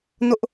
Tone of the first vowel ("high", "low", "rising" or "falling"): high